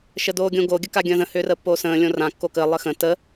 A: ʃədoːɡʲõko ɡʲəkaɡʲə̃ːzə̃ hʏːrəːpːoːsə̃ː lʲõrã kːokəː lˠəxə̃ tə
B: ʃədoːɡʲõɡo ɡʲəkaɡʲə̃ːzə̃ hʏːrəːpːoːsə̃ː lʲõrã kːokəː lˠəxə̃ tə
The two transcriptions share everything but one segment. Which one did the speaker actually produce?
B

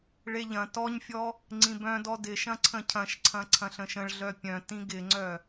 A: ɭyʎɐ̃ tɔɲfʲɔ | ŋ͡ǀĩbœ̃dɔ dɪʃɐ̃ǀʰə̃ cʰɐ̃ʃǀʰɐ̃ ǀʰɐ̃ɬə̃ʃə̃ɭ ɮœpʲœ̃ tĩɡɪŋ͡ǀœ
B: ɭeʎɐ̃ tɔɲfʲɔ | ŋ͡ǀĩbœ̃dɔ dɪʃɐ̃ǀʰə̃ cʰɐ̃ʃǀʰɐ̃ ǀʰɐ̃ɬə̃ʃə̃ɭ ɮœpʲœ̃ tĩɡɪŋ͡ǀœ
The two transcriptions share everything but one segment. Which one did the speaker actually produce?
B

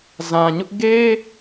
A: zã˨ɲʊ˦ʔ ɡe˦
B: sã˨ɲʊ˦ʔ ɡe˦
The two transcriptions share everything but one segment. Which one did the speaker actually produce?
A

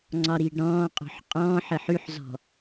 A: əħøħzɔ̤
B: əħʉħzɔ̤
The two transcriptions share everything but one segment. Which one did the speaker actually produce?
B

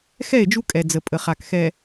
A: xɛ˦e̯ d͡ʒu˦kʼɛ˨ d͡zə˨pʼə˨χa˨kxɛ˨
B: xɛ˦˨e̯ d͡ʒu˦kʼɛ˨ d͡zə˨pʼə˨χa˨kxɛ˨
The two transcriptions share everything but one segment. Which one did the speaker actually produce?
B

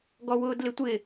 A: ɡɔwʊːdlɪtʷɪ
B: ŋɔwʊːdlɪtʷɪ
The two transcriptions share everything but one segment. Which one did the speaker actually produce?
A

